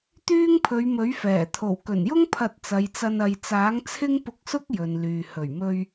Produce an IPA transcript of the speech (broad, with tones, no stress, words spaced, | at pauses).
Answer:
t̪yː˥ŋpʰɵ˨˧ɥmɵ˨˥ɥ fɛː˨˩ t̪ʰo˨˩wkɵ˨˩njʊ˥ŋ pʰɐ˧t̚t͡sɐ˨˧jt͡sɐ˧n ɐ˨j t͡saː˨˥ŋt͡sʰɪ˥ŋpʊ˧k̚sʊ˥k̚ jɵ˨nlyː˨ hɵ˨˩ɥmɵ˧ɥ